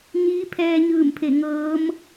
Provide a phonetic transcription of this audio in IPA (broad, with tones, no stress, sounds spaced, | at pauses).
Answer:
ɲ iː˧˥ pʰ ɛː˧ ɲ ɯː˧˩ m pʰ e˧˩ ŋ ɤː˧˥ m